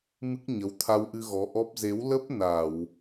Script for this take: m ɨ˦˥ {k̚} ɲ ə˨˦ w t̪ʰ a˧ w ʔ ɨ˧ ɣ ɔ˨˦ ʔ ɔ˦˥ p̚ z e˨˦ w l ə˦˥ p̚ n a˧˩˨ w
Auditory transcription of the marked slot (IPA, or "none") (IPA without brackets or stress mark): k̚